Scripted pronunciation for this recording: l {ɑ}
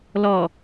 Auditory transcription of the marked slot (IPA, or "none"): ɔ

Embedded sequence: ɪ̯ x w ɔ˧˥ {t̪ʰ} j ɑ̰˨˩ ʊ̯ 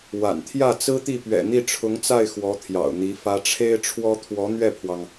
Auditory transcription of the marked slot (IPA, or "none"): t̪ʰ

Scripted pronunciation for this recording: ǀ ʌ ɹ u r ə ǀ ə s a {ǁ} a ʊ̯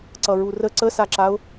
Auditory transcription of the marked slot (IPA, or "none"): ǁ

